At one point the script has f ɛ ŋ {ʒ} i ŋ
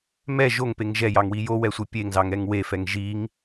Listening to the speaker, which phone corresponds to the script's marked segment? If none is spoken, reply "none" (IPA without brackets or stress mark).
ʒ